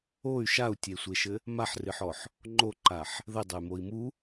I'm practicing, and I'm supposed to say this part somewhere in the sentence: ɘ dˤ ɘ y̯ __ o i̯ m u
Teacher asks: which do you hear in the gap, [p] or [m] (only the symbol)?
m